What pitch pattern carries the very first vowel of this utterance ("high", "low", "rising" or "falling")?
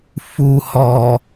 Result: low